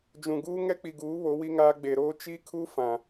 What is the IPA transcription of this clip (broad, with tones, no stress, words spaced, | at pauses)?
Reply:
d͡ʒũ˨ɡuː˦ ŋɛ˦k͡pi˨ɡuː˨˦ βo˨˦wi˦ŋaː˦ ɡ͡be˨ɾoː˦ t͡ʃi˦kʰu˦ fã˨